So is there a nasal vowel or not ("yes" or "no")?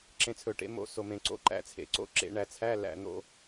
yes